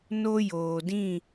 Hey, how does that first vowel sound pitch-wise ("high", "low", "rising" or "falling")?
high